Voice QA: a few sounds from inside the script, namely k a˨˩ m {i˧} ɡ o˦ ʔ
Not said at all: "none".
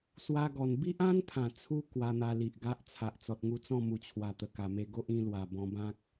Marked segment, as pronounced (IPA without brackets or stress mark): e˧